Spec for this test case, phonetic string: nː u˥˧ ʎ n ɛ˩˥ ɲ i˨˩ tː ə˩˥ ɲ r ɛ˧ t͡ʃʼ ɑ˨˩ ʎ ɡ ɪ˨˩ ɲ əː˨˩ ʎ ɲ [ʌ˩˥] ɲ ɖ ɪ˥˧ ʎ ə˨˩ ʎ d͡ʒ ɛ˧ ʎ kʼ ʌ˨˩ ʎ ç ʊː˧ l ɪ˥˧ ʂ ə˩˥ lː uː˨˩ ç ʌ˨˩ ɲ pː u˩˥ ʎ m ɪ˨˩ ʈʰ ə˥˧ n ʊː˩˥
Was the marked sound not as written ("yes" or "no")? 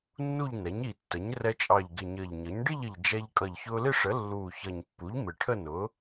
no